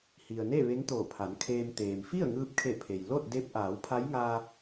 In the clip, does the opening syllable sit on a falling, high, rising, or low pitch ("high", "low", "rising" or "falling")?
low